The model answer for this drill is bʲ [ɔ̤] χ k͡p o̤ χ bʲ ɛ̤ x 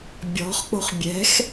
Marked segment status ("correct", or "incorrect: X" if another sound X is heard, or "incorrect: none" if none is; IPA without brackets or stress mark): correct